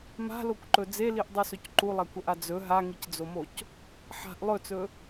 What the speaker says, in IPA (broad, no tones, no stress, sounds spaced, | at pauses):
m a̤ l o kʷ ǃ ɵ d͡z e l i ʔ dˤ u s ɵ c ǃ u lˠ a kʷ ɐ ʔ a d͡z ɵ ɦ a ŋ i c d͡z o m o c | ħ a̤ ʔ lˠ ɵ t͡s ɵ